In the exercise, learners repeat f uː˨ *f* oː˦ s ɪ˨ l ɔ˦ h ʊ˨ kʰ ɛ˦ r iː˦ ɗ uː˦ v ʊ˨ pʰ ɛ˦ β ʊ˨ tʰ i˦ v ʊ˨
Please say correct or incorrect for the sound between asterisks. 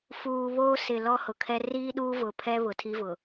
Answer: incorrect